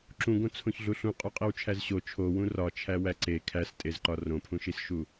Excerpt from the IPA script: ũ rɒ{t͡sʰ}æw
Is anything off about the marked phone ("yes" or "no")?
yes